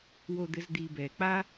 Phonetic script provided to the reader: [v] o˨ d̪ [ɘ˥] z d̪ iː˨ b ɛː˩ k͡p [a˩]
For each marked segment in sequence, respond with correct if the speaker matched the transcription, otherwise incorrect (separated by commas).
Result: incorrect, incorrect, incorrect